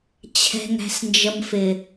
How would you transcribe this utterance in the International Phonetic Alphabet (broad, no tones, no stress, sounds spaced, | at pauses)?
t͡ɕʰ ɛ̤ ŋ æ̤ s n d͡ʒ ə m f ɪ